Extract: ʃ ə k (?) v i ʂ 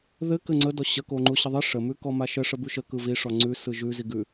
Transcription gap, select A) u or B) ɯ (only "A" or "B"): B